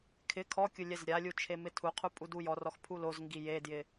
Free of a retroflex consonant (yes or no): yes